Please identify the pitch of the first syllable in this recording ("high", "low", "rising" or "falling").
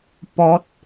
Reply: high